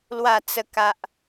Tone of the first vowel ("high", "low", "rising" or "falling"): falling